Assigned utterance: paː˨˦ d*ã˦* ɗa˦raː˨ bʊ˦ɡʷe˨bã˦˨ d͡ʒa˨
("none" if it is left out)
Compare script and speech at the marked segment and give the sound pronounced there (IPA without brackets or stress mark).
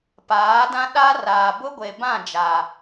ã˦